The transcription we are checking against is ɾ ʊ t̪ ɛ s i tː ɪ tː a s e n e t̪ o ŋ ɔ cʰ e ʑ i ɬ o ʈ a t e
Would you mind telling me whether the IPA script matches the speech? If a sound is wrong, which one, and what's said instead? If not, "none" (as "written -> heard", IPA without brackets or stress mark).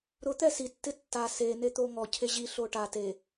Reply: none